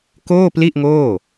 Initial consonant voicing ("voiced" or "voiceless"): voiceless